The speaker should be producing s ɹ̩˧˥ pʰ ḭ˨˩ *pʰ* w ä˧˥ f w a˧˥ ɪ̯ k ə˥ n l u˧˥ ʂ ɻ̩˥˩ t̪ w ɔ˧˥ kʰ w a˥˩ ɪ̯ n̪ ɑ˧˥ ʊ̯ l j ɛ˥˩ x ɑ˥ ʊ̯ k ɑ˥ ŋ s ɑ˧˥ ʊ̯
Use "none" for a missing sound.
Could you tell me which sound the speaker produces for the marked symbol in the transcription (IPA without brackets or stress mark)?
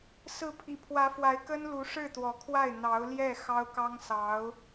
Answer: pʰ